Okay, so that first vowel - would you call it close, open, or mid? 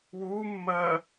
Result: close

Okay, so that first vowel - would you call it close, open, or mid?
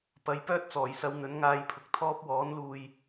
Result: open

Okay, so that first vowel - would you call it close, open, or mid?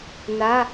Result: open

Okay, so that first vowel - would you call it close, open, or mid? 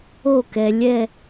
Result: mid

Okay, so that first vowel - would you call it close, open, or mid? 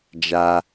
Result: open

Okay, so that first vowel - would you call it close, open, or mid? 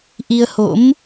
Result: close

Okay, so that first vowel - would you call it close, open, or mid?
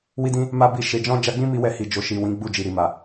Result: close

